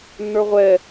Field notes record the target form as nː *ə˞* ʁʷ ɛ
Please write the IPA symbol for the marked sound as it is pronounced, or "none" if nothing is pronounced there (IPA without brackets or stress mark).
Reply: ə˞